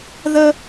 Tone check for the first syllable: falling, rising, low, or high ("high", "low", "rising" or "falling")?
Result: high